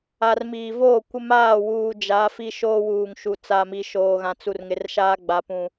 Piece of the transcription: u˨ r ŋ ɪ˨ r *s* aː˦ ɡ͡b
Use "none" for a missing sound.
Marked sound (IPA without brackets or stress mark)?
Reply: ʃ